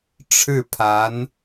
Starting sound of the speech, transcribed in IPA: ʈ͡ʂʰ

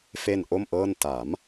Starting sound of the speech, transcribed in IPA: f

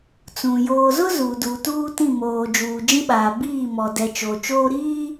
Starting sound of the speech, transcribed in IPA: t͡s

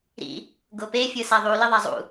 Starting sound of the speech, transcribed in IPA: ɾ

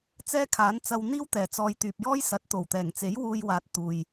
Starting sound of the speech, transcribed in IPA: t͡s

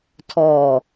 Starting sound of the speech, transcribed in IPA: tʰ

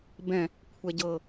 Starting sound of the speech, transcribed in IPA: b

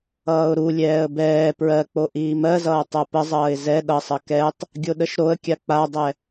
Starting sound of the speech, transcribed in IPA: ʌː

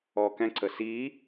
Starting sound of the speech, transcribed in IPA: ɔ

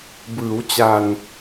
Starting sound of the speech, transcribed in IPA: b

